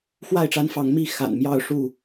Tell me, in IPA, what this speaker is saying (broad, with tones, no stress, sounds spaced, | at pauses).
x w a˥˨ ɪ̯ ʈ͡ʂ a˦ n f ɑ˨˦ ŋ m i˥˨ x a̰˨˩ n m j ɑ˥˨ ʊ̯ ʂ u˥˨